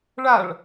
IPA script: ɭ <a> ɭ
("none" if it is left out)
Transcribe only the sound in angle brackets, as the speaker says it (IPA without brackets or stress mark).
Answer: a